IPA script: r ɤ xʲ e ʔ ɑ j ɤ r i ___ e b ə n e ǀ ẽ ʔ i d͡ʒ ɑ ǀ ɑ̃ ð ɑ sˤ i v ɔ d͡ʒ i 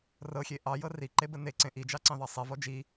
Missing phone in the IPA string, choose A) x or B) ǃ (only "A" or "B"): B